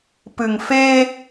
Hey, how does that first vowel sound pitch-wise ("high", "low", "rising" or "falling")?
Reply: low